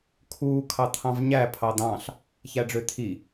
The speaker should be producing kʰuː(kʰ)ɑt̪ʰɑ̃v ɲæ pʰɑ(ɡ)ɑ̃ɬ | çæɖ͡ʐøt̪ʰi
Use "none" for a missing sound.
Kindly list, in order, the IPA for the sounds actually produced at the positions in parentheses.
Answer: kʰ, d̪

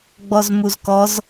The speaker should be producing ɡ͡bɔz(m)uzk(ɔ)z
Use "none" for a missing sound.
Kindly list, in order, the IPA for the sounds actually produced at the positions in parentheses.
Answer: m, ɔ

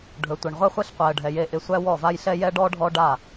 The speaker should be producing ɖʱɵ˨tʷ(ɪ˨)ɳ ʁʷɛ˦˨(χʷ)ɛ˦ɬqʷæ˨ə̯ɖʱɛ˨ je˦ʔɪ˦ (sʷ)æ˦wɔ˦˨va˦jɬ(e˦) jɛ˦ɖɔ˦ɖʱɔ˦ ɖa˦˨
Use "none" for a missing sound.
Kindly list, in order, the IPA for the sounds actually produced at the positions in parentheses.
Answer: ɪ˨, χʷ, sʷ, ɛ˦

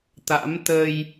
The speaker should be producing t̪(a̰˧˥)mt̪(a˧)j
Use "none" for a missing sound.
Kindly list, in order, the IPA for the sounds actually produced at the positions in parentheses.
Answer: a̰˧˥, ə˧

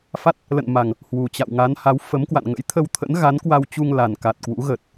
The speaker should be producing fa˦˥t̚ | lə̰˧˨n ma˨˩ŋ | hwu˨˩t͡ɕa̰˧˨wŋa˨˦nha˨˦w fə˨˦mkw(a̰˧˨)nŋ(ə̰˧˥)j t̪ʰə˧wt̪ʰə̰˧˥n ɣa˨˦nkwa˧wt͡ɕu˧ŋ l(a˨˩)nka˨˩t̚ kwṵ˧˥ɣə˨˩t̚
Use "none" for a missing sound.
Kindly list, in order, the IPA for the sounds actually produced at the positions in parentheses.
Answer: a̰˧˨, ə̰˧˥, a˨˩

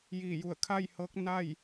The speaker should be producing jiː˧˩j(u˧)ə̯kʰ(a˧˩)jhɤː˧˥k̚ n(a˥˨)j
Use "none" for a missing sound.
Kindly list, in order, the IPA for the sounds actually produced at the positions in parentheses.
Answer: u˧˩, a˥˨, a˥˨

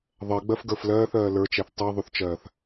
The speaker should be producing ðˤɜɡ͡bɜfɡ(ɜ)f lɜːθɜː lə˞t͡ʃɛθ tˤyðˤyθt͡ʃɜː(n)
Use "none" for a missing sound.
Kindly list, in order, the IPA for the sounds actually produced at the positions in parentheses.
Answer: ə˞, θ

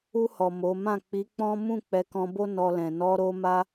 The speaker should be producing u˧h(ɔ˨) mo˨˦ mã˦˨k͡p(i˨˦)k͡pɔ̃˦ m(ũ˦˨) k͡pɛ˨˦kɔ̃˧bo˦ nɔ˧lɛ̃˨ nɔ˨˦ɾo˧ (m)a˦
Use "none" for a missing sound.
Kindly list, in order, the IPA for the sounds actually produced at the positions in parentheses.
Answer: ɔ˨, i˨˦, ũ˦˨, m

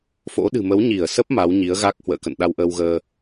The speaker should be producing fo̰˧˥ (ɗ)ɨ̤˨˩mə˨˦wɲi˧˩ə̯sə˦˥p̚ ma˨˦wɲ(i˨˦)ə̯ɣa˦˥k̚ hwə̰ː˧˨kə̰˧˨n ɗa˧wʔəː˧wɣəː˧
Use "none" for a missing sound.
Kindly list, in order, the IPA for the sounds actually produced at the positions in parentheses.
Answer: ɗ, i˨˦

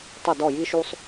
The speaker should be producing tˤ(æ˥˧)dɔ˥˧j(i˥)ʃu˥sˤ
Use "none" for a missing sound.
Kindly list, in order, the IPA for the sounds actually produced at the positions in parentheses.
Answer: ə˥˧, i˥

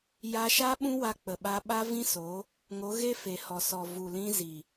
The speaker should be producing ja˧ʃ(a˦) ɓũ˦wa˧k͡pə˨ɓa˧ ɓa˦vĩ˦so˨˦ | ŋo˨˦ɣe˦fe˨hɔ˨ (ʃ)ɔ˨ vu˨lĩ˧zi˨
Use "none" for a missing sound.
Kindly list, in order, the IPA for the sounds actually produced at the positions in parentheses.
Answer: a˦, s

